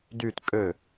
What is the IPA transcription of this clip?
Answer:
d y t kʼ ø

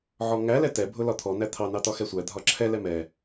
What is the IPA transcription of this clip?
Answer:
ʕ ɔ ŋ æ l ɛ t ɛ bʱ ʊ l ɒ t̪ʰ ɔ n æ t̪ʰ ɑ n ɑ t ɒ x ɛ sʷ æ dʱ ɒ ǁʰ ɛ l ɛ m ɛ

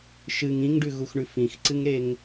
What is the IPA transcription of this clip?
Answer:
ʃ ɨ ŋ ĩ ŋ ɖ ʉ ɣ u x ɳ ʉ f ĩ x ǀ ɨ ŋ ɾ e ŋ

